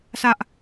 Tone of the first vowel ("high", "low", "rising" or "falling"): high